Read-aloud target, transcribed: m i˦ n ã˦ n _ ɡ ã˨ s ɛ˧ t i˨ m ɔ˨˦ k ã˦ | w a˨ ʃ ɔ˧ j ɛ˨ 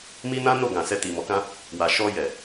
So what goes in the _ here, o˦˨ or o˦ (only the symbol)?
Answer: o˦˨